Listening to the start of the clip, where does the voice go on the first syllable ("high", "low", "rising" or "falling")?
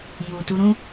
low